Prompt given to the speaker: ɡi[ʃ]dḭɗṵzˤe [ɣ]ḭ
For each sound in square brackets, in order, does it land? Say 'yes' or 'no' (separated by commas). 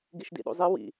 yes, no